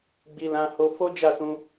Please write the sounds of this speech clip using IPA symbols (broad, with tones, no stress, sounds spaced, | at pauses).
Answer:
ɡ͡b i˧ l ã˦ h o˦ f o˦ d͡ʒ a˦˨ s ũ˧